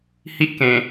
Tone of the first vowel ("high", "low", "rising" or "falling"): high